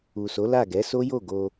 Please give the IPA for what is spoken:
u˨ s o˨˦ l a˦˨ ɡ ɛ˨˦ s o˦ j o˦˨ ɡ o˧

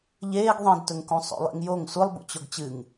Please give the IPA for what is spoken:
ʎ eː ɡ ðˤ ĩ d t ɵ ŋ k ũ sˤ o̰ lˠ ḭ ŋ j o ŋ sʷ ɨ lˠ b ṵ t͡ɕ o ɡ t͡ɕ ɨ ŋ

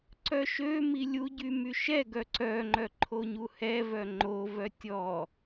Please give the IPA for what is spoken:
ǀ œ ʃ ø m i lʲ u ɟ y m y ʃ ɛ ɡ œ ǀ œ ŋ͡ǃ œ ǃʰ o ɲ u h ɛ v œ ŋ͡ǃ o v œ tʲ ɔ

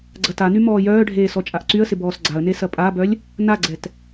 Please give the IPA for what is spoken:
ɡ͡ǀ ɐ t a n y m ɔː j œː ɖʱ eː s ɔ t͡ʃʼ a ʔ ǀ y ə̯ s ɪ b ɔː s ɡ͡ǀ a ə̯ n e s ɐ pʼ a b œ lʲ | n a ɡ͡ǀ ɛ t

